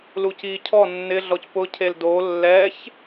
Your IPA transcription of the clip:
luciːcʰɔ nːɪ ɮɔcpʊ cʰeldo lːɛç

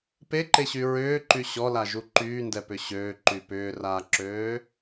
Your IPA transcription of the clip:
peǃeɕy ɹʏːǃy ɕɔlaʒu ǃyːndɛpʏ ɕøːǃy pʏːraːǁøː

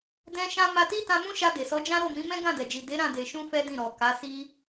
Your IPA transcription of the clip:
dɛ̃˦ʃã˦ ma˧ti˦ tã˧mũ˦ʃa˧ de˨sɔ˨˦d͡ʒã˦ ɾo˦˨mĩ˨˦mɛ̃˦ ɡã˦˨dɛ˨d͡ʒi˨ de˨˦ɾã˦˨ de˨ʃũ˧ fɛ˦dĩ˦˨ɾɔ˨ ka˨˦si˦

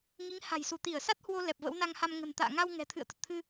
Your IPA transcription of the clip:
ŋi˨˦ŋha̤˨˩jsu˧˩ t̪i˧˩ə̯ sa˦˥t̚hwo˧ lɛ˨˩p̚və̰˧˥wna˧ŋ ha˧mŋə̤˨˩nt̪a̰ː˧˨ ŋa˧w ŋɛ̤˨˩t̪ʰɨ̰˧˨ə̯t̪ə˨˩t̚t̪ʰɨ˧

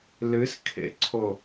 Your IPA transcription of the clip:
lɨskʰḛǀʰo

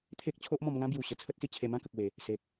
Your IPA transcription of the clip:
t̪ʰe˦k̚t͡ɕʰo˦ʔ mɔ̃˧mŋã˦bju˨˩ ɕə˧t͡sʰə˦t̚si˧t͡ɕʰe˧ mã˦kə˨k̚we˨˩ | se˨k̚

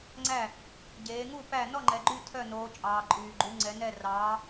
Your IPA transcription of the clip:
ŋ͡ǀæ˥˨ | ɟeː˨˦ŋu˥˨ pæ˥˨ nɔ˥˨ŋ͡ǃɛ˨ɡ͡ǃy˥˨ tʰœ˥˨noː˨˦ t͡ʃʼɑː˨ǃʼyː˨ ɡ͡ǃu˨˦ŋ͡ǀɛ˨˦nɛ˥˨ rɑː˨˦

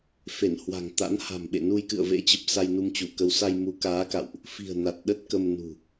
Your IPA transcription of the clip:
fe˧˩nhwa̤˨˩ŋt̪a̰˧˥n ha̤˨˩mɓḛ˧˨ nu˧jkɨ̰˧˨ə̯vḛ˧˥t͡ɕə˨˩p̚ sa˧jnu˧mt͡ɕu˧˩kə˧w sa˧jmu˨˦kaː˨˦ka̰˧˨wʔ | fi̤˨˩ə̯ na˨˩t̚ɗə˦˥t̚kə˧mnṳ˨˩

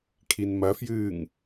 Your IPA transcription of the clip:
kʰinmɐfjɨːŋ

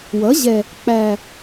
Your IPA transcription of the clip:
wʌ˩˥ʑɛ˨˩ | k͡pæ˨˩

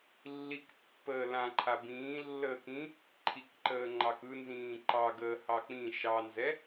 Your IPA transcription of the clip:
lːikpːəː lãǃʰa bĩː lːəːkĩ | ǃʰikǃəː ŋ͡ǃɑkɯnzĩː ǃɑ ɡəːhɑk͡pĩ ʃɑnzɛ

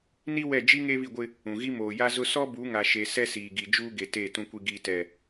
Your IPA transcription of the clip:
ni˦wɛ˦˨ d͡ʒi˦ ŋeː˦βi˦˨ɡʷɪ˦ | ũ˨ɣi˦ moː˨ja˦zʊ˦ sɔ˦bu˨˦ŋa˨ʃe˨ sɛ˦siː˨ɡi˨ d͡ʒuː˦ɡe˨ te˦˨ tũ˨kʷi˨ɡiː˨tɛ˨

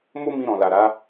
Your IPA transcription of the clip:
mo˦ mĩ˧ ɾɔ̃˨la˨ɾa˨˦

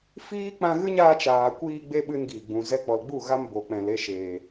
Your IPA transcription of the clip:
fiː˦ k͡pã˧ɣɨ˦ɲaː˧ t͡ʃaː˨kʷiː˧ ɡ͡be˦ɓɨ˧n ɡiː˨ɡ͡bũ˨ zɛ˧k͡pɔ˨l ɡ͡bu˦˨ɣa˧m bo˨k͡pɛ̃˨l e˧ʃeː˨

